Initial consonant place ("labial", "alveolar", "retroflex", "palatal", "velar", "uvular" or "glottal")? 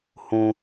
glottal